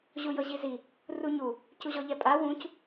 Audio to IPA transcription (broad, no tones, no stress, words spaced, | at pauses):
ʑujɤʑizi | ruɲu | cuʑɔʎɛpʼa wũc